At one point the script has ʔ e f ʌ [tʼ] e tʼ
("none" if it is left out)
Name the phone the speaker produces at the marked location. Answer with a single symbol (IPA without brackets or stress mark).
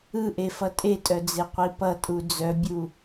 tʼ